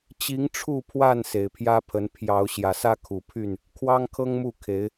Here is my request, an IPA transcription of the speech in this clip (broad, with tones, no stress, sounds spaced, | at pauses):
t͡ɕ i˨˦ ŋ ʈ͡ʂʰ u˥˨ pʰ w a˥˨ n s e˨˩ ɪ̯ pʰ j ä˦ pʰ ə˨˦ n pʰ j ɑ˨˦ ʊ̯ ɕ j ä˨˩ s ä˦ kʰ u˨˩ pʰ y˥˨ n | kʰ w ɑ˦ ŋ kʰ ɤ˦ ŋ m u˥˨ kʰ e˨˦ ɪ̯